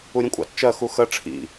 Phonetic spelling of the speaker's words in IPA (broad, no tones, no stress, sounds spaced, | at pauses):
u ɾʲ ũ kʷʼ ɑ̰ t t͡ʃ ɜ x u x ə ʈ͡ʂʰ ḭ